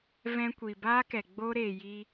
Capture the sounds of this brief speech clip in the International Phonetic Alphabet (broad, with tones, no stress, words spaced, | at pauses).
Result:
vɛ̃˧kʷi˨baː˦kɛ˨ ɡ͡bo˧ɾeː˨ ji˧